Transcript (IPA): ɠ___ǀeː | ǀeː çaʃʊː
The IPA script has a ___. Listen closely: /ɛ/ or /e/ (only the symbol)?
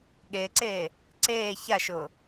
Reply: e